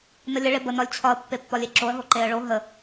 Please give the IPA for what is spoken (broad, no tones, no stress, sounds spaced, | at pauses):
n ə lʲ ə ɭ e b ə n ɒ lʲ t͡ɕʰ ɒ ə̯ pː e pː ɒ lʲ e ǁ o ə̯ ɦ o ǃ e ə̯ ɭ o ɦ ə